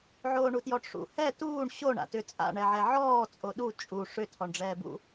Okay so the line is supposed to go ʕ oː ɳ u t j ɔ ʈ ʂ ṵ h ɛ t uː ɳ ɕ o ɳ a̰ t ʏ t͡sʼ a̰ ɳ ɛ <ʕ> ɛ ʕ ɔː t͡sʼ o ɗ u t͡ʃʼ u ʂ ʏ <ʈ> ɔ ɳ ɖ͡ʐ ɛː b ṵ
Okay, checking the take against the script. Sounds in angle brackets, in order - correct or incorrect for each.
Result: correct, incorrect

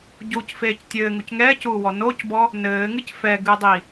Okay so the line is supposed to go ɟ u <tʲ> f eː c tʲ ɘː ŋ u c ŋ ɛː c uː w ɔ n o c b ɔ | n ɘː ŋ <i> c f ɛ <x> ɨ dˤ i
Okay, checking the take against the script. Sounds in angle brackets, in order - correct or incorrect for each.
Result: incorrect, incorrect, incorrect

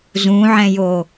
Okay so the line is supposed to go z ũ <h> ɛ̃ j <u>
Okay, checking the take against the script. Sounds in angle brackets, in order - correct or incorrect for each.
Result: incorrect, incorrect

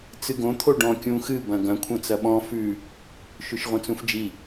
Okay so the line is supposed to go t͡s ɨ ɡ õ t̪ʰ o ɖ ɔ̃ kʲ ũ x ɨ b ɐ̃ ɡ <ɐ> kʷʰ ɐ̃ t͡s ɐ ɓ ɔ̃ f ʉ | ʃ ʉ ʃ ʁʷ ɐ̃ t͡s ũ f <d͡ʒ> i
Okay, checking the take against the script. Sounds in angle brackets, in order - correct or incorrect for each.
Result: incorrect, correct

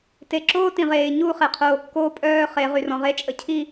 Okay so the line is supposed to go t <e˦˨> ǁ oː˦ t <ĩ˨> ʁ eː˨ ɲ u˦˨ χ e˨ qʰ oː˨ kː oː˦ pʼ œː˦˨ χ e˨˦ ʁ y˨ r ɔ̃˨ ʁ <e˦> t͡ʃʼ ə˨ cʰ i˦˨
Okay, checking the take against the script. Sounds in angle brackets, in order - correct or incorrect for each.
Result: incorrect, correct, correct

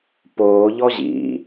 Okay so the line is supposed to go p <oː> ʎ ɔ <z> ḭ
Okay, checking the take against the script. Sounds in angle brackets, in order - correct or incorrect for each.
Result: correct, incorrect

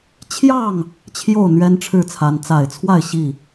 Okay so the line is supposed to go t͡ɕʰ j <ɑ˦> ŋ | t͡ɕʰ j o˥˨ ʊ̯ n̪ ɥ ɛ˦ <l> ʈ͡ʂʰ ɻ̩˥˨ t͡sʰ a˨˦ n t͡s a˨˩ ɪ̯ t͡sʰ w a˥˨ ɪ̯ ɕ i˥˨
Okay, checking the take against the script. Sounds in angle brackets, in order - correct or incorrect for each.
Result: incorrect, incorrect

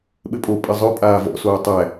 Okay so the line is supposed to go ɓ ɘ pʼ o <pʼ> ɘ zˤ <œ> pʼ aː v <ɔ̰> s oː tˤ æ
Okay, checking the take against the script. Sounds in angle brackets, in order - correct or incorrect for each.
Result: correct, correct, correct

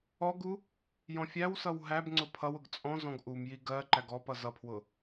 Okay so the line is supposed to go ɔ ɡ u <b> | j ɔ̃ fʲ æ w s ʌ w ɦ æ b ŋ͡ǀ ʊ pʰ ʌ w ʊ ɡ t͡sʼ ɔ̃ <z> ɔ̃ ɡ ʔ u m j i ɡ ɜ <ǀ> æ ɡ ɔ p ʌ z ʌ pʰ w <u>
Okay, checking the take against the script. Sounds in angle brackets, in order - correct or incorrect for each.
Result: incorrect, correct, incorrect, incorrect

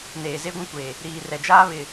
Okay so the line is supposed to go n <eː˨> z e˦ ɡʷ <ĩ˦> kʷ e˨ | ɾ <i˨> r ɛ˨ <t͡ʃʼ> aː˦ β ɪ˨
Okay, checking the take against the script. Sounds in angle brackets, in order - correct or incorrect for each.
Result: correct, correct, incorrect, incorrect

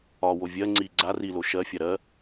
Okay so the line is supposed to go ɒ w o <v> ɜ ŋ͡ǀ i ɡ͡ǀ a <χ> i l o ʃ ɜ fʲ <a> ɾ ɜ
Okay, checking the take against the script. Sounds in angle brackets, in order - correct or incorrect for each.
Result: incorrect, incorrect, correct

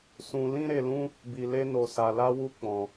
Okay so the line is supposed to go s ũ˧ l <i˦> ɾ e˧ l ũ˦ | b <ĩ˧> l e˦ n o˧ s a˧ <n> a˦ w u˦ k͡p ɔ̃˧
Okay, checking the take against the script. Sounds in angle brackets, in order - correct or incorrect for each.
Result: incorrect, incorrect, incorrect

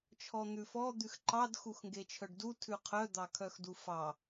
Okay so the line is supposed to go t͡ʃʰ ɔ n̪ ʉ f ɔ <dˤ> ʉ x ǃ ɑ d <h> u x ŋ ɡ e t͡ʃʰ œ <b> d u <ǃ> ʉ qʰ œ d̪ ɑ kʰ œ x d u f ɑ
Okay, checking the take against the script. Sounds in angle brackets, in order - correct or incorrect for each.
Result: incorrect, incorrect, incorrect, incorrect

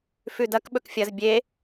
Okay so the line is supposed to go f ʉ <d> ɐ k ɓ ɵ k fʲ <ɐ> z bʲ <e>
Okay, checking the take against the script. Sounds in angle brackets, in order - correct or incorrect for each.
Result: correct, correct, correct

